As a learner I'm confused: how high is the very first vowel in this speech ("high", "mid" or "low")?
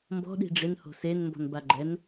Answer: mid